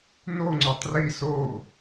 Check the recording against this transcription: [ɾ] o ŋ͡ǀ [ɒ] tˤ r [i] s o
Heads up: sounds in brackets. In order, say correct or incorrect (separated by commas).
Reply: incorrect, correct, correct